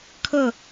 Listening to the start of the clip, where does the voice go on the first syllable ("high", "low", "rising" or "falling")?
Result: falling